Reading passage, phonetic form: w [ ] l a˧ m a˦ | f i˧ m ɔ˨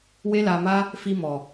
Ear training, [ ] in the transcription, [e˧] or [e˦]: e˦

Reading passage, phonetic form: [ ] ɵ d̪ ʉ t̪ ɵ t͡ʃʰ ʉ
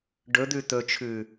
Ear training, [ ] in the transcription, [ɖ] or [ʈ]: ɖ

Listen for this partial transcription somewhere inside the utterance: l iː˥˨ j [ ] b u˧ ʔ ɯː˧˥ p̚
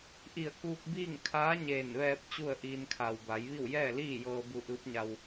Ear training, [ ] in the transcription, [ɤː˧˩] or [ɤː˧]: ɤː˧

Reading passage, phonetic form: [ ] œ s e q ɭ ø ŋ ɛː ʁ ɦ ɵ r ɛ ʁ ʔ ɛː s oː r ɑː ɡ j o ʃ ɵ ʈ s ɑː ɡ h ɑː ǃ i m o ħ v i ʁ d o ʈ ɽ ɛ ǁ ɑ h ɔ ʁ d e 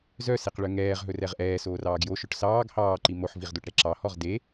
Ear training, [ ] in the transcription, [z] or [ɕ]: z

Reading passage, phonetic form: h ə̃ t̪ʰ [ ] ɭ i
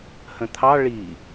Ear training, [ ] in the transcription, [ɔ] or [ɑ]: ɑ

